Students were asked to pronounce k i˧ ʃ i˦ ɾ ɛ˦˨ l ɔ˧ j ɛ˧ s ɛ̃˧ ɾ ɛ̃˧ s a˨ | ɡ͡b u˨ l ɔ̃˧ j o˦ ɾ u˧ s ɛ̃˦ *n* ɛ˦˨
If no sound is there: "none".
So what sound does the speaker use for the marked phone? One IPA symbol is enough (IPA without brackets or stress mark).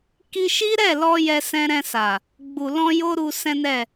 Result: n